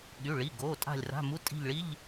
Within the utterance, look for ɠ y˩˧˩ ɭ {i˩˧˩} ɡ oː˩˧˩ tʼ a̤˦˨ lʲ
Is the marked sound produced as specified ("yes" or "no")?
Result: yes